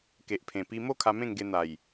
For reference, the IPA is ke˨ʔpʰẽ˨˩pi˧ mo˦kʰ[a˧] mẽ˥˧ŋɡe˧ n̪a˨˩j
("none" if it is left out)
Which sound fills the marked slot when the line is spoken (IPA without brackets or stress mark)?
a˧